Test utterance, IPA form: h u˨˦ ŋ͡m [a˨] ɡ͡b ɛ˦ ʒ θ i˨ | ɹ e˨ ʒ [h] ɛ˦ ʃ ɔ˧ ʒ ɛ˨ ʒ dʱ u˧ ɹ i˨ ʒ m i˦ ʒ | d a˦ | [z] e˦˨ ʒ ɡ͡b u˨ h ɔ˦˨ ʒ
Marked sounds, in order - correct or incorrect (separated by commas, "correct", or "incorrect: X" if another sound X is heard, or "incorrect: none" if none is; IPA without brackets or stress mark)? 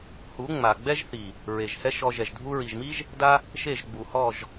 correct, correct, incorrect: ʃ